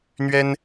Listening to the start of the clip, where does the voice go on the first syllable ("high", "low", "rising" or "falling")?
high